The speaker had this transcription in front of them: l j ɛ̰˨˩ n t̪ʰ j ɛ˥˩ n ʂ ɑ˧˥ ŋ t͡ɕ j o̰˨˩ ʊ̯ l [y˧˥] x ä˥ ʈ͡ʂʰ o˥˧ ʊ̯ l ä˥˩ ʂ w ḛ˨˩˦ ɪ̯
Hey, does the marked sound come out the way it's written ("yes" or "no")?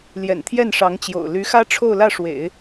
yes